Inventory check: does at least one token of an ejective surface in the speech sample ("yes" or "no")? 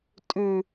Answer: yes